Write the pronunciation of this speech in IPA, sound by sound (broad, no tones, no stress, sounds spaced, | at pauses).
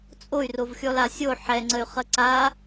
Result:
t͡sʼ o y̯ r o v xʲ ɔ l a sʲ o ħ ɛ ŋ͡ǀ ə y̯ χ ə ǀ a